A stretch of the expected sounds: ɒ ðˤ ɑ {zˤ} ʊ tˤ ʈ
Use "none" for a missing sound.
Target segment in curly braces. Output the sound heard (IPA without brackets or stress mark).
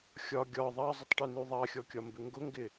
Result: zˤ